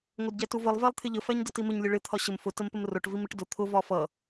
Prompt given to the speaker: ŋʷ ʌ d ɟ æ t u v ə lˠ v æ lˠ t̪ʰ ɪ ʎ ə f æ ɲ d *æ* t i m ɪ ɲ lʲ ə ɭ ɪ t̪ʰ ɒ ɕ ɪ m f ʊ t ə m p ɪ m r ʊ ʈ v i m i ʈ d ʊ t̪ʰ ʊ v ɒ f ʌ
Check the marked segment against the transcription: incorrect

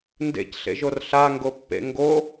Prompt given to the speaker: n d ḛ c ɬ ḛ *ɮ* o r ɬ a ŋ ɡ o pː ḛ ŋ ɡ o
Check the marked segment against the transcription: incorrect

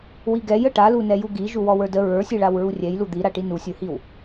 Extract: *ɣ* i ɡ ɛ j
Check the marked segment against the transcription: incorrect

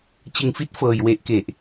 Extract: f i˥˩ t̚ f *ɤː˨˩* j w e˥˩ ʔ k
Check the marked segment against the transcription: correct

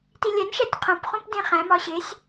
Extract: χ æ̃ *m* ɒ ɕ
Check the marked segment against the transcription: correct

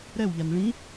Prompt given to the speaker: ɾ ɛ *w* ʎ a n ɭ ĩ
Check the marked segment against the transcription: correct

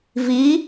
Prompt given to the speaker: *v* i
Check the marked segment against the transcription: correct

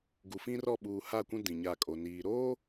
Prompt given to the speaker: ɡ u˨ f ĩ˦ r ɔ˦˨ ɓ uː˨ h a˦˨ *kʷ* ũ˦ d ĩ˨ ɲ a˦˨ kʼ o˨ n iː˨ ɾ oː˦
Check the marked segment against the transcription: correct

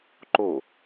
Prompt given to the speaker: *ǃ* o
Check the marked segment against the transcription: correct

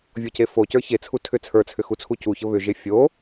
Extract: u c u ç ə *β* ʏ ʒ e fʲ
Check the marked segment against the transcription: correct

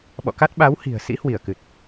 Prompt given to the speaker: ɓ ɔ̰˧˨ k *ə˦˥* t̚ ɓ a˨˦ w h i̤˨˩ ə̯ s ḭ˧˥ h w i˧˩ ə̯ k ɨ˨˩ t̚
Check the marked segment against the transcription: incorrect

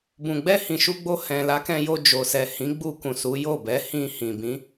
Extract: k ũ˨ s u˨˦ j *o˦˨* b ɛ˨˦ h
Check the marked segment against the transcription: correct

